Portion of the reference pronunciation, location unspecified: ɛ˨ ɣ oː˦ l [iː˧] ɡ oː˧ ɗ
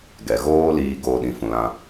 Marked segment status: correct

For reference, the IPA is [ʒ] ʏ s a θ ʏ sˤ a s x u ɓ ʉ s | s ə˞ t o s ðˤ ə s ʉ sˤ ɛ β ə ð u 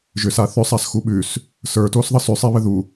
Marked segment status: correct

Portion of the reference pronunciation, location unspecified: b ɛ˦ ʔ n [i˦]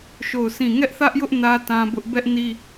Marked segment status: correct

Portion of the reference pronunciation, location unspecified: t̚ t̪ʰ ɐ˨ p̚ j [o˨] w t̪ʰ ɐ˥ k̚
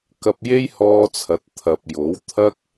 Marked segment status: incorrect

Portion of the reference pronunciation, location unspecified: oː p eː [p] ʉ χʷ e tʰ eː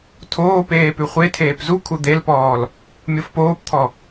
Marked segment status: correct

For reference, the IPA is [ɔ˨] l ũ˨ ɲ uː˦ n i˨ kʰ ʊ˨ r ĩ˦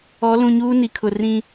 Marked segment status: incorrect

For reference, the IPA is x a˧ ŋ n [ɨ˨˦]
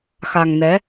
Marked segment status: incorrect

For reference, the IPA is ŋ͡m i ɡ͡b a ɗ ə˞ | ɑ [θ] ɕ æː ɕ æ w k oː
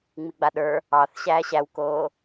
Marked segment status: correct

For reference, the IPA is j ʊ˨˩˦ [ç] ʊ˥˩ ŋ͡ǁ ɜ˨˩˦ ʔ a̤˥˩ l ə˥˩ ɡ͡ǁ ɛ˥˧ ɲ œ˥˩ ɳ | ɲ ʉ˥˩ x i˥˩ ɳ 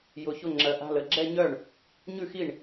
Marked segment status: correct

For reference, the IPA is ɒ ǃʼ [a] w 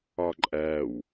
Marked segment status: incorrect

